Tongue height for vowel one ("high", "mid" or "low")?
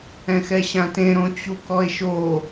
mid